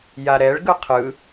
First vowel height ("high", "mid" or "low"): low